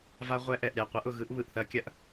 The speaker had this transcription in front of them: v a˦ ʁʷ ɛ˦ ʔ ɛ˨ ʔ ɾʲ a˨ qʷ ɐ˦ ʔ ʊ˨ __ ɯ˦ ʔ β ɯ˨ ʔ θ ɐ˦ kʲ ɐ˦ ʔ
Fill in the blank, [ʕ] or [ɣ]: ɣ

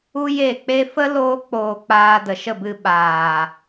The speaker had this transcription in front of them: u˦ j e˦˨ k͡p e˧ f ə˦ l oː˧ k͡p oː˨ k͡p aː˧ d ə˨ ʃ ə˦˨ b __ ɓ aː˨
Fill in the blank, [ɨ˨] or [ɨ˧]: ɨ˧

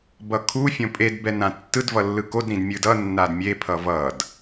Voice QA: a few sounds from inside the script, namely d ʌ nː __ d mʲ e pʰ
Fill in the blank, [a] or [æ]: a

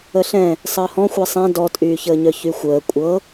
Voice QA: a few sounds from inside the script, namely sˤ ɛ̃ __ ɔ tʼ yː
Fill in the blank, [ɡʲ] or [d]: d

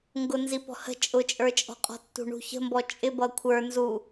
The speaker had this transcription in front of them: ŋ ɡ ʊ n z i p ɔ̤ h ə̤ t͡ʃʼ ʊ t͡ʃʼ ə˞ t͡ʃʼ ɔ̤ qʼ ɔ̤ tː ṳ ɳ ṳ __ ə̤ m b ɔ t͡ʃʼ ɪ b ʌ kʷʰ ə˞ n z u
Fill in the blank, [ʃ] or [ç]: ç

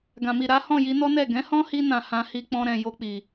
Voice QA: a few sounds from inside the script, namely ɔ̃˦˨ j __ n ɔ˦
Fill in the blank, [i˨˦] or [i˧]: i˧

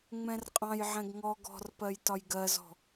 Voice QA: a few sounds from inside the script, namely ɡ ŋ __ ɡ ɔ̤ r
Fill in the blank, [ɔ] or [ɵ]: ɔ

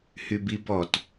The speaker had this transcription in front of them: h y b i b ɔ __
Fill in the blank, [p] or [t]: t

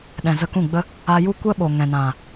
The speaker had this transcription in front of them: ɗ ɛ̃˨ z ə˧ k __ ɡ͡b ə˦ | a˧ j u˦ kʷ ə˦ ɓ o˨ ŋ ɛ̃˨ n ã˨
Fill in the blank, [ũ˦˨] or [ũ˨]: ũ˦˨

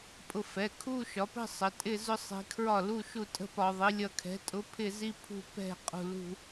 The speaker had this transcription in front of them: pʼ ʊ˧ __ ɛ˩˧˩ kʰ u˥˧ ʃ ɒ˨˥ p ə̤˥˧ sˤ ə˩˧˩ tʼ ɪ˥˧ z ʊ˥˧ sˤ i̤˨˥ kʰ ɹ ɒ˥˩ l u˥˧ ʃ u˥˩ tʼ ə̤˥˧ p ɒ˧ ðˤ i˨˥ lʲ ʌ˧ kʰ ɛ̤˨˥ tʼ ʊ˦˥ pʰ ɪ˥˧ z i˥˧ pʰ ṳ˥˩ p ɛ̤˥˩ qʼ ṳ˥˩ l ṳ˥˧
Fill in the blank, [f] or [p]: f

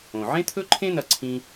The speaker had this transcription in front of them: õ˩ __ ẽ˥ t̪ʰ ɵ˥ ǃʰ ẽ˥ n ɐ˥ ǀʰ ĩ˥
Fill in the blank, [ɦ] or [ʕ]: ʕ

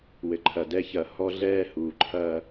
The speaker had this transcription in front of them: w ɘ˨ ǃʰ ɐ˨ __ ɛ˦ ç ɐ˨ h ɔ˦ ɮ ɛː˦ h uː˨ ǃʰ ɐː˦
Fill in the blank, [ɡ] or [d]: d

